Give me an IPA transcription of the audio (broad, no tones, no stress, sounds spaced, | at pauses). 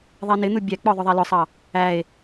ðˤ ɛ n ɪ n̪ u bʲ æ k͡p ɔ ðˤ ʊ ðˤ æ l ʊ sˤ ɑ | æ e̯